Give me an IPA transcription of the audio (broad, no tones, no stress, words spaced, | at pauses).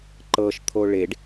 ǃɤʃ t̪ʰoɭeɖ